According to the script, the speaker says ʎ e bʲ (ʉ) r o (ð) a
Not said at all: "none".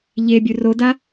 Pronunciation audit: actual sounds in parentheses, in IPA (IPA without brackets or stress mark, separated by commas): ʉ, d